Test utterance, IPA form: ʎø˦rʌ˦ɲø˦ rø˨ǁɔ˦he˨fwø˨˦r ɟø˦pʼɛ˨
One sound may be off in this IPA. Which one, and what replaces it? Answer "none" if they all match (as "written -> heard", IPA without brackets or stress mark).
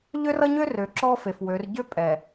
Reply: h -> f